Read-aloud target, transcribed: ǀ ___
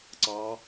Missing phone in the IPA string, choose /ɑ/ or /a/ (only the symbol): ɑ